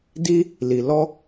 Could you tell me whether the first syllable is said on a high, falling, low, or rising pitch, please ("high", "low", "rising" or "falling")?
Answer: high